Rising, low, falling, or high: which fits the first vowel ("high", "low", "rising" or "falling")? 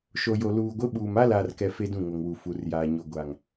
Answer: low